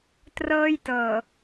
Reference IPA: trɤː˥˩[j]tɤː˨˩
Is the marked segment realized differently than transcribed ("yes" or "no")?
no